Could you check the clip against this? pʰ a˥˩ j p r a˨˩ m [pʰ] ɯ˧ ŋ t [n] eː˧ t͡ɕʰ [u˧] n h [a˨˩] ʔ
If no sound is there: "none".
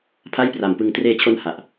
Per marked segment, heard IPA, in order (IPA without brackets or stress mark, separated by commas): p, r, o˧, a˨˩